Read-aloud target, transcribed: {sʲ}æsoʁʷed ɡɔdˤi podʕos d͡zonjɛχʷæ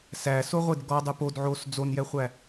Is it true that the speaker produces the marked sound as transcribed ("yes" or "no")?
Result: no